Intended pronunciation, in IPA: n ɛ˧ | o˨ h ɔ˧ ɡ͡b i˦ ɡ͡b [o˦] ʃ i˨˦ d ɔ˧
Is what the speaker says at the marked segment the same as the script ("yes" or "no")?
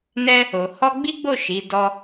no